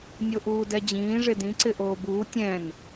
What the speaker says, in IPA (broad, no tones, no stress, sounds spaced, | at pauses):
nʲ o ʔ uː d ɛ d͡ʑ ĩː ʐ ɪ d ĩ ǀ ɪ ʔ oː b uː tʲ ɛ̃ n